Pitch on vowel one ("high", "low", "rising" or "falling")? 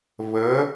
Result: rising